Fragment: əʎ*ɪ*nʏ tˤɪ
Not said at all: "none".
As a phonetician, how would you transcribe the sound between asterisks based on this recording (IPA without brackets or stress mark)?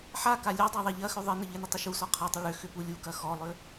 ɪ